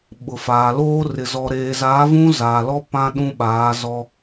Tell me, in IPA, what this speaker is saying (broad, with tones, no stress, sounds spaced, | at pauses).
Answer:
ɓ ʊ˨ f aː˨ l oː˦ r ɪ˨ z ɔ˨ ɾ eː˨ z aː˨˦ v ũ˦ z aː˨ l ɔ˦ p ã˦ ɗ ũ˦ ɓ aː˨˦ z ɔ˦